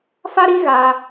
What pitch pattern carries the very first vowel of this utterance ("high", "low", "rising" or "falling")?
high